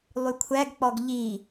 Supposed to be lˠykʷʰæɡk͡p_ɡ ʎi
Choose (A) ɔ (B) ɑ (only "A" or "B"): A